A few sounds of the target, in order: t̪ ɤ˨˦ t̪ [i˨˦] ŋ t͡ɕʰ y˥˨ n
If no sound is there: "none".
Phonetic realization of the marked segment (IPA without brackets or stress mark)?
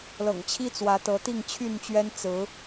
i˥˨